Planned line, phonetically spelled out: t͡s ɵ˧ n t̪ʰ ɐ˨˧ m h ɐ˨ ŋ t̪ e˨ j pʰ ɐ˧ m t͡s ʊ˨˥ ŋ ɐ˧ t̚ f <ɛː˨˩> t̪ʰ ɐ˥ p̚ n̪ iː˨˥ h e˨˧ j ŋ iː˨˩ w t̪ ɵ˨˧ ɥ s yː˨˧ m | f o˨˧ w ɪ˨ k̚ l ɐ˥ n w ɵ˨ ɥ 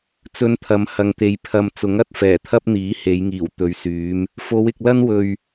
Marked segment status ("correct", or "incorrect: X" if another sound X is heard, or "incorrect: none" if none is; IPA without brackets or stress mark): correct